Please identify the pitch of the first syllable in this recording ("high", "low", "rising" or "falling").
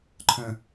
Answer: low